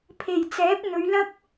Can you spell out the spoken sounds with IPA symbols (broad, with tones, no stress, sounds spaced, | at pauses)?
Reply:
pʰ e˨˩ j t͡s ɛː˨˥ p̚ n̪ ɵ˨˧ ɥ l ɐ˥ k̚